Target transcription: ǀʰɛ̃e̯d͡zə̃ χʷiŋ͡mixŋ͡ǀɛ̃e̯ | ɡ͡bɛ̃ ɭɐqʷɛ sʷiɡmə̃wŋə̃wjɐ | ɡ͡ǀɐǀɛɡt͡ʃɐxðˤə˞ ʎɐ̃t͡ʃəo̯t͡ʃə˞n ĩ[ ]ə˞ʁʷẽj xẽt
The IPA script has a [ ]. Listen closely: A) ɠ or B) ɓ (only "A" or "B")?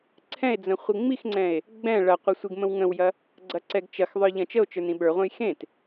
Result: B